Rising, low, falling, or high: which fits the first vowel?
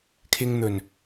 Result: low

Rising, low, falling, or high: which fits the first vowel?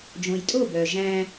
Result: low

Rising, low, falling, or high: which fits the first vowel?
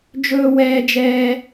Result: high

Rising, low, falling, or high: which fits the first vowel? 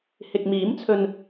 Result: low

